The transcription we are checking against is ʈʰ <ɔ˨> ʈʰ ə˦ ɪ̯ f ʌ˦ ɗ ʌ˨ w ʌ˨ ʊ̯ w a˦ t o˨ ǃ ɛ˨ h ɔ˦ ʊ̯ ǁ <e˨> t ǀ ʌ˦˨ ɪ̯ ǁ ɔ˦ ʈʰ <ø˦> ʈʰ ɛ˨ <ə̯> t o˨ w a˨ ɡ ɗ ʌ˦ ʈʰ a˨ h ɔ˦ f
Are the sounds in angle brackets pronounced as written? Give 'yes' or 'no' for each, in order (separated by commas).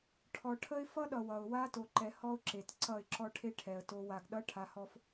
yes, yes, no, yes